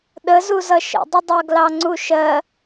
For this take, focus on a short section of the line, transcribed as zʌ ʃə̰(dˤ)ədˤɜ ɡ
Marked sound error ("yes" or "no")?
no